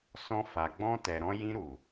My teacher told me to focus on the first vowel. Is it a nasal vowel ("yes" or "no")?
yes